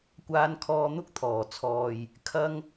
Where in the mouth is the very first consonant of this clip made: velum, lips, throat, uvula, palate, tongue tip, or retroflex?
velum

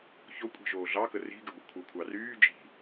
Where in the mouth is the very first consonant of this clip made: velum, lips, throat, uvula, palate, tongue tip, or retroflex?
palate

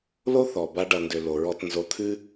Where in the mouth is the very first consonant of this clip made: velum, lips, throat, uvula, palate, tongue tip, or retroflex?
tongue tip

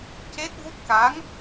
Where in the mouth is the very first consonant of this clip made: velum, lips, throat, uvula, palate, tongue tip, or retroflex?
palate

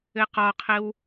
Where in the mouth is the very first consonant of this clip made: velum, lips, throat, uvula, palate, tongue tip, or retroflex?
uvula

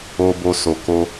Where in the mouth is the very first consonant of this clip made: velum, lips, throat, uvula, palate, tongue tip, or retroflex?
lips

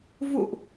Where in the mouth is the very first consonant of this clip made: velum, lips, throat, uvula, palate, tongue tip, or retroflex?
lips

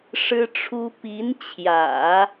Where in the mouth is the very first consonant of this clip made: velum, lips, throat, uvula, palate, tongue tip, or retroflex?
retroflex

